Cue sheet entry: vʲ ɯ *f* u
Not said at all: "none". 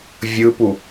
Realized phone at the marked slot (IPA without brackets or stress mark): p